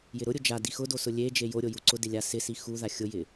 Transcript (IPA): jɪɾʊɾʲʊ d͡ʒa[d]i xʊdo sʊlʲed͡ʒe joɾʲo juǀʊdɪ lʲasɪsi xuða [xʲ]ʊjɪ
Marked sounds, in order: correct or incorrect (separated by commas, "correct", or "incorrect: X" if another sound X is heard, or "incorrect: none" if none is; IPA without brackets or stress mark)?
correct, correct